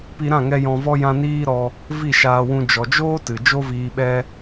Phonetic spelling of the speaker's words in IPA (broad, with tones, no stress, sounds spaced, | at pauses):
p i˧ ɾ ã˦˨ ŋ ɛ˧ j ɔ̃˧ v ɔ˦ j ã˦ n iː˦ ɾ ɔ˧ | v i˦˨ ʃ aː˧ w ũ˧ d͡ʒ ɔ˨ d͡ʒ oː˦ t ɨ˨ d͡ʒ o˦ v iː˧ ɓ ɛ˦